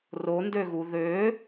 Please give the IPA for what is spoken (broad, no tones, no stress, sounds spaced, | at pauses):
r o n d ø ɣ u ð ø